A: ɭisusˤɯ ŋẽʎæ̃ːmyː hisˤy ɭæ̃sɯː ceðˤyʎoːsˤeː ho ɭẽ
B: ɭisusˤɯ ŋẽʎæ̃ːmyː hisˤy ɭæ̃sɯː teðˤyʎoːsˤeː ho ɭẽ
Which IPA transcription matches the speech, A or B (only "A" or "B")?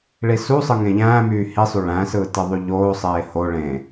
B